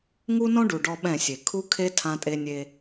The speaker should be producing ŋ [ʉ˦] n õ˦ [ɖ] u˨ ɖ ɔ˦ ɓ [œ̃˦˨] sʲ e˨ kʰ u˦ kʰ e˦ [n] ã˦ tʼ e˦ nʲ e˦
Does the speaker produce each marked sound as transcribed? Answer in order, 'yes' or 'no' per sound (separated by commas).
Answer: no, yes, no, no